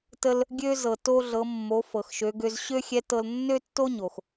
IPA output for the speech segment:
t ə˧ l | ɡʲ ø˧ z ɤ˩ t o˧ ɮ ɤ˩˧ mː o˩˧ f ɤ˩ x ʃ ø˩˧ ɡ ø˧ z ɕ ø˥ xʲ ɛ˧˥ t ɤ˧ l nː ø˥ tː o˥ ɲ o˩ x

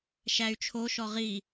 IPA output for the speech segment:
ʃ æ y̯ t͡ʃʰ o ʃ ɔ ʁ i

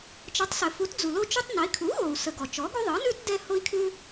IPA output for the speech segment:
t͡ʃ ə˩˥ tˤ s ɘ˩ f u˩˥ t d͡z u˩ l o˦ t͡ʃ u˦ tˤ n a˩˥ i̯ kʰ u˩˥ ɣ o˩ u̯ s ə˩ ɡ ɔ˩ t͡ʃ ɔ˩˥ ɡ u˦ ðˤ ɯ˩˥ n ʉ˦ t d ɛ˦ h o˦ i̯ kʰ ʉ˦

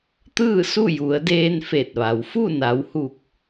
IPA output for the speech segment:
t̪ ɯː˥˨ s u˥˨ j u˩˧ ə̯ d eː˧ n f e˧˩ t̚ ʋ a˩ w f u˥˨ n a˩˧ w h u˧˩ k̚

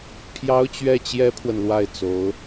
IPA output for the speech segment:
pʰ j ɑ˥ ʊ̯ t͡ɕ ɥ ɛ˥˩ t͡ɕ j ɛ˥ pʰ w ə˨ n l w a˥˩ ɪ̯ t͡s o˧˥ ʊ̯

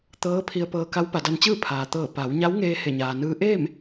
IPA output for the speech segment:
t̪ ɤː˧˥ pʰ i˧ ə̯ p ɤː˧ k a˧˥ w p a˩˧ d a˧ n t͡ɕ ɯː˥˨ pʰ aː˩ t̪ ɤː˧˩ p a˩˧ w ɲ a˧˥ w ŋ eː˧ h e˧˩ ɲ aː˩ n ɯː˧˥ ʔ eː˥˨ m

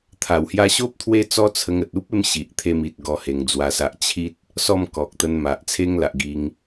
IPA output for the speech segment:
t̪ʰ a˨˩ w h j a˧ ɕ o˦ p̚ t̪ʰ w e˦ t͡s ɔ˦ t͡sʰ ə˧ ŋ ə˨ t̚ u˦ p̚ e˧ m ɕ i˨ ʔ t̪ʰ e˧ m i˨ t̚ ɡ ɔ˦ h e˧ ŋ d͡z w a˦ s a˦ ʔ t͡ɕʰ i˦ t̚ | s ɔ˥˧ m k ɔ˨ k̚ t̪ ə˧ n m a˨ ʔ t͡sʰ e˦ ŋ l a˨ ʔ ɡ i˧ ŋ

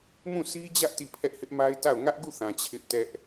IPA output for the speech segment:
m ũ˦˨ sʰ i˦ d͡ʑ ä˦ ʔ t i˦˨ pʰ ɛ˦ ʔ h ɪ˦ ʔ m a˦ ɪ̯ t a˦˨ ʊ̯ ŋ ä˦ ʔ ɡ u˦˨ θ ã˨ t͡ɕʰ ɪ˦ ʔ t ɛ˦ ʔ

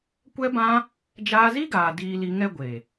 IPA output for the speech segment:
kʷ ɛ˦ b ã˦ | d͡ʒ aː˧ z i˦ ɡ aː˨ d iː˧ l i˧ ŋ ɛ˦ ɡʷ e˨

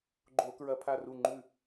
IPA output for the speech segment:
ɡ͡ǃ o˧˩˧ k ɹ ɐ˧˩˧ pʰ a˧˩ r u˧˩ ŋ͡ǃ ʉ˧˩

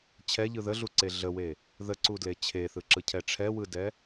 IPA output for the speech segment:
t͡ɕʰ ɛ ʎ ɯ ð ə ɮ u ǀ e ɮ ə w e | ð ə ǀ u d l e t͡ɕʰ e θ ɯ ǁ ɯ cʰ ɛ ʈ͡ʂʰ ɛ w ɯ d ɛ

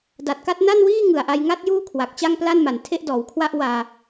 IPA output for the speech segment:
d a˨˩ t̚ k a˥˩ t̚ n a˥˩ n w iː˥˩ ŋ ɯ˨˩ a̯ ʔ a˧ j ŋ a˥˩ t̚ j uː˥˩ kʰ w a˨˩ k̚ t͡ɕ a˥˩ ŋ p l a˥˩ n m a˨˩ n tʰ e˥˩ ʔ d ɔː˩˦ w kʰ w a˥˩ ʔ w aː˧

